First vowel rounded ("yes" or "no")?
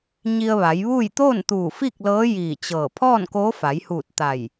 no